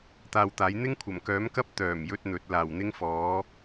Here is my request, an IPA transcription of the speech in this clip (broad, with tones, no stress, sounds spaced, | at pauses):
t̪ aː˧ w t̪ aː˨˥ j n̪ ɪ˥ ŋ kʷʰ ɐ˨˩ m k œː˨˥ m k ɐ˥ p̚ t̪ œː˨˩ m j ɵ˥ t̚ n̪ ɵ˨˥ t̚ l aː˨˩ w n̪ ɪ˥ ŋ f ɔː˨˥